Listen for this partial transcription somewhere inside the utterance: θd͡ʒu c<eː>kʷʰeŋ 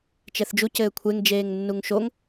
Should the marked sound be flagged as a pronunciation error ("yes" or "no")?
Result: yes